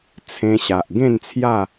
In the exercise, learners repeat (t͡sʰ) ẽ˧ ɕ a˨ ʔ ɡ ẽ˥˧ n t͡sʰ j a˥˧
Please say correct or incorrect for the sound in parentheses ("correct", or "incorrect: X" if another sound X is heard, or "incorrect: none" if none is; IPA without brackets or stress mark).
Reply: correct